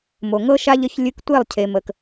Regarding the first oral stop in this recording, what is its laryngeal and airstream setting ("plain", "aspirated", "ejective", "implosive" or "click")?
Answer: plain